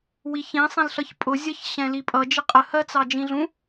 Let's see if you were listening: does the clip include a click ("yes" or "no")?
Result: no